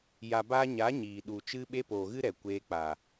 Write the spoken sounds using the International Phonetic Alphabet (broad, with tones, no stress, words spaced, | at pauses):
ja˨baː˧ɲa˨˦ ɲiː˨ɗu˨ t͡ʃɨ˧ɓe˧ poː˨ɣɨ˦ɾɛ˨ kʷeː˧k͡pa˨